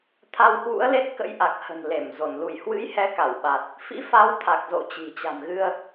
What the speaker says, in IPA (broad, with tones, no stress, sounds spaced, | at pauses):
t̪ʰ a˧ w h w ṵ˧˥ ə̯ l e˦˥ t̚ k ə̰˧˥ j ʔ a˨˩ k̚ h ə̤˨˩ n l e˧˩ m z o˧˩ n l u˧˩ j h w ɨ̰˧˥ j h ɛ˨˦ k a˧˩ w ɓ a˨˩ t̚ | f ḭ˧˥ f a˨˦ w t̪ʰ a˨˩ k̚ z o̰˧˨ t͡ɕ i̤˨˩ t͡ɕ a̤˨˩ m ɣ ɨ˧ ə̯